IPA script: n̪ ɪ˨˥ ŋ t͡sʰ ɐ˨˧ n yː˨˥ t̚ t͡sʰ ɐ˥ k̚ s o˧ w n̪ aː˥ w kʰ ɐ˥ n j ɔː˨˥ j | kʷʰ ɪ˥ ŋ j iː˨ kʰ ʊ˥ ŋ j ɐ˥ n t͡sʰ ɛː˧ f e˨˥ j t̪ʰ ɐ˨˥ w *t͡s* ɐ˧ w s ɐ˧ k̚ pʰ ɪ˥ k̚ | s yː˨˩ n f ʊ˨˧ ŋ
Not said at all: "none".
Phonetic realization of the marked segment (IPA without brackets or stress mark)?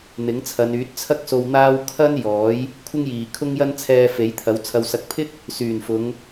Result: t͡sʰ